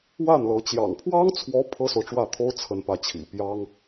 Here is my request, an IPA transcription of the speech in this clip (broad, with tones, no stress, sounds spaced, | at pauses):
w a˥˩ n l ɤ˧˥ t͡ɕ j ɑ̰˨˩ ŋ pʰ w ɑ˥ ŋ t͡sʰ w ɔ˧˥ pʰ ɤ˥ s o˨ ʊ̯ ʈ͡ʂ w ä˥˩ t̪ʰ o˥ ʊ̯ t͡sʰ ə˥˧ n p ä˥˩ t͡ɕʰ ḭ˨˩ p j ɑ˥ ŋ